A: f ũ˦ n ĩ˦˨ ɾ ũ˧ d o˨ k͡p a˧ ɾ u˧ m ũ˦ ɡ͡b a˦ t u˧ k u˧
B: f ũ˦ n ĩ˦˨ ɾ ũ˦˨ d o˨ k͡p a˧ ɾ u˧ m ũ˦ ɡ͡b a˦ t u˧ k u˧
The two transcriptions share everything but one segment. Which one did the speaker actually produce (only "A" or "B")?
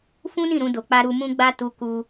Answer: A